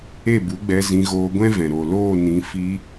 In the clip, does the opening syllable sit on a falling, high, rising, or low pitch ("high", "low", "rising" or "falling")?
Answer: falling